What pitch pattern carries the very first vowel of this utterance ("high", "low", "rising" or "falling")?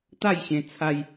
falling